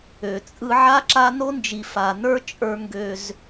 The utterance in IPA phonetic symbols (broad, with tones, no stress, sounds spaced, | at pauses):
ø˨ t͡sʼ ɯ˦ ʕ a˦ ǁ a˦ n o˦ n d͡ʒ i˨ f a˨ n ə˞˦ t͡ʃʼ ə˞˦ ŋ ɡ ø˦ z